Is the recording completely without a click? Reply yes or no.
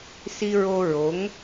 yes